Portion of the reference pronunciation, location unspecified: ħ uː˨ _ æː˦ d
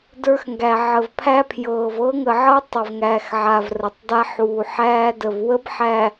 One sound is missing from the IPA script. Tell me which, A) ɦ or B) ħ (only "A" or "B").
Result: B